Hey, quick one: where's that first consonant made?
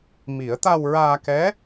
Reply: lips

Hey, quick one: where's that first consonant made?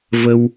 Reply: lips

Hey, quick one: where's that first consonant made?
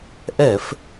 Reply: throat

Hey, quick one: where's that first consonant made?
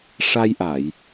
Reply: retroflex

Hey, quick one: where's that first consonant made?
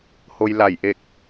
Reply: throat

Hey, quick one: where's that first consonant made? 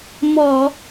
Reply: lips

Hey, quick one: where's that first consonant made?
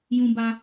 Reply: palate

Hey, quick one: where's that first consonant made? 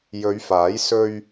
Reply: palate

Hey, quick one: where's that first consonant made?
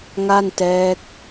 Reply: velum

